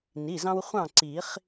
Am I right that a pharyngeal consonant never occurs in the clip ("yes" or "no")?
yes